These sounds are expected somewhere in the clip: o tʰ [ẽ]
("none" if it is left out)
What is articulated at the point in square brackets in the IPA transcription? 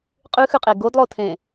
ẽ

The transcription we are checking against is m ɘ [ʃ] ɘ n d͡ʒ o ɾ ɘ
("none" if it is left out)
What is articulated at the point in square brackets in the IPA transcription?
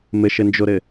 ʃ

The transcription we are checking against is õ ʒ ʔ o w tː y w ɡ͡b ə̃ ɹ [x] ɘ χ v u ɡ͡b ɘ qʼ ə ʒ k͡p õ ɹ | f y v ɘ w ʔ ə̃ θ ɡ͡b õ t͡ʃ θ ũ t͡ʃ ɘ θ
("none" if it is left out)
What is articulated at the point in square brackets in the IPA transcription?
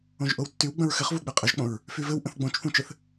x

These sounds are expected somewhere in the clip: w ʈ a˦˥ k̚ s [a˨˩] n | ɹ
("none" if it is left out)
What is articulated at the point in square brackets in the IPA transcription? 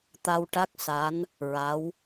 a˧˥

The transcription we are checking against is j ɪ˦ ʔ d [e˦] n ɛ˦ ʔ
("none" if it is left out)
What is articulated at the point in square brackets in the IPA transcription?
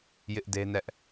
e˦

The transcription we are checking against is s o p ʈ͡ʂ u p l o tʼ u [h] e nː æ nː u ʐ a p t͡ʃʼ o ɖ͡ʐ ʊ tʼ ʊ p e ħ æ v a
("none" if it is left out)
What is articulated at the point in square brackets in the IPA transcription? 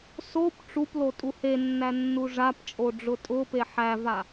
h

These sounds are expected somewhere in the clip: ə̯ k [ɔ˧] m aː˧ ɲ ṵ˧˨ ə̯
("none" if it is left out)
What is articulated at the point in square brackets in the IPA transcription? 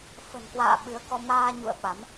ɔ˧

